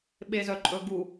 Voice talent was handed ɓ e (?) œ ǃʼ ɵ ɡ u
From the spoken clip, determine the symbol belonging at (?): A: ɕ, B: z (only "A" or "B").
B